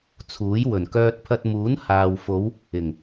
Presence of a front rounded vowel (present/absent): present